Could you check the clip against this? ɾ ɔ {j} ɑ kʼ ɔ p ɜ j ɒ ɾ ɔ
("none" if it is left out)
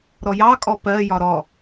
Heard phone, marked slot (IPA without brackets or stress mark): j